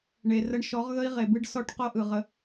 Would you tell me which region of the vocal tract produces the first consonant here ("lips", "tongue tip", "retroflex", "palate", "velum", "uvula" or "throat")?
retroflex